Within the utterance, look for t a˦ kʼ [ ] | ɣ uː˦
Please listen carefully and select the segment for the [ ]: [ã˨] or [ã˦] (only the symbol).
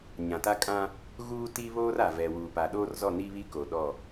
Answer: ã˦